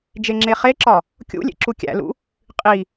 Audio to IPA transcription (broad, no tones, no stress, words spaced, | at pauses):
d͡ʒeŋ͡ǁeχeǁɒ | kʲṵlʲḛ ǁukʲæ̰lṵ | qʼi